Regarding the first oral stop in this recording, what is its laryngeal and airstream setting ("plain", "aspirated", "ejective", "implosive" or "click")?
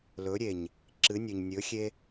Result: click